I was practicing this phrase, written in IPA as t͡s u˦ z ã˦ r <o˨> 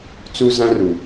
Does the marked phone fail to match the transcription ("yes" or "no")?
yes